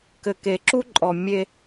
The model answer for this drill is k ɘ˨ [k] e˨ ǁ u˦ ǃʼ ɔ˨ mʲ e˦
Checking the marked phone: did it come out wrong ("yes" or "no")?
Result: no